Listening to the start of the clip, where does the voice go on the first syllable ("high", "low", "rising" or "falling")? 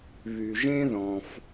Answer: low